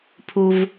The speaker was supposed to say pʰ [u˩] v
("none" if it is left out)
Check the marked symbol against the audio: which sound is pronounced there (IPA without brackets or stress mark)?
u˩